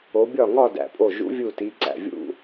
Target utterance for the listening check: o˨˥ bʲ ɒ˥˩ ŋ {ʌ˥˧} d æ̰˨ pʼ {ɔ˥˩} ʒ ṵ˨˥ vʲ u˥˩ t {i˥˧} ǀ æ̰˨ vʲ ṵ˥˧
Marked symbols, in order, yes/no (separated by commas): no, no, no